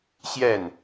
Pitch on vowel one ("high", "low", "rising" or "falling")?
falling